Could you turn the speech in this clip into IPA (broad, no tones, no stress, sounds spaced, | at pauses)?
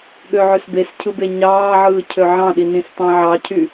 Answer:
ɠ ø ʕ ø s b e s cʰ ɯ b e ɲ ɑː ʕ ɯː cʰ ø ʕ ɑ̃ ɗ i n ĩ s tˤ ɑ̃ ʕ ɑ cʰ y